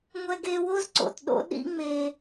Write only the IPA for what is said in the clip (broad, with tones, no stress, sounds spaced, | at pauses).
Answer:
ŋʷ ɛ˧ ɡ e˧ w o˥ z ǀ o̰˩ t ɗ o̰˥ ɗ ḭ˥ ŋ͡m e˧